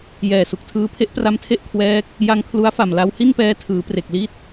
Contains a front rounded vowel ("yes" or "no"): no